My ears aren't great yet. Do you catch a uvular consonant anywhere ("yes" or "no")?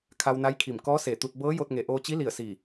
no